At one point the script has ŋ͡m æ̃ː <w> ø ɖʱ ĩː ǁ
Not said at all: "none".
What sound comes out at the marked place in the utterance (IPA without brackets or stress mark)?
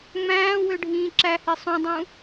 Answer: w